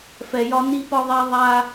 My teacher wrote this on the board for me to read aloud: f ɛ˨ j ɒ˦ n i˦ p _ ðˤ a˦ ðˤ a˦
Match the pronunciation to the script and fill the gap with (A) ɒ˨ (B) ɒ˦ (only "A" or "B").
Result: B